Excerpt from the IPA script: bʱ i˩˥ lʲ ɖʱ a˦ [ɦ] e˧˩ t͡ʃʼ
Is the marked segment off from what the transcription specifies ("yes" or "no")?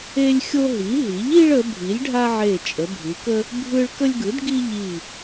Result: yes